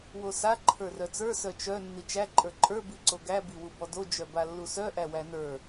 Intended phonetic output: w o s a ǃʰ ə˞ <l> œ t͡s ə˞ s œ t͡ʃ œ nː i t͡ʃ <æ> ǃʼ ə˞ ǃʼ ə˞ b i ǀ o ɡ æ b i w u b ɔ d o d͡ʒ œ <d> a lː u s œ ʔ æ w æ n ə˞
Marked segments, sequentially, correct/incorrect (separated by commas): incorrect, correct, incorrect